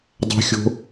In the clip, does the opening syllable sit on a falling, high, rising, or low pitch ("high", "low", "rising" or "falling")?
high